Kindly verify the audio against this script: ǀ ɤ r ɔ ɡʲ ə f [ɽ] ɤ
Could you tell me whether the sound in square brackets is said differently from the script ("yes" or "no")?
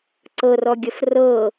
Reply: yes